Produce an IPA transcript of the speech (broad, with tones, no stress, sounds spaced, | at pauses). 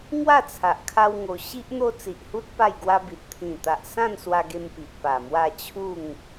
ŋ w a˥˧ t͡sʰ a˨ ʔ kʰ a˧ w ŋ o˧ ɕ i˦ ʔ n̪ o˦ t͡s i˨ ʔ h u˦ t̚ p a˥˧ j ɡ w a˦ b i˨ t̚ t̪ʰ ĩ˨˩ t̪ a˨ ʔ s ã˥˧ n s w a˧ ɡ e˧ m p i˨ ʔ p a˨˩ m w a˥˧ t͡ɕʰ u˥˧ ŋ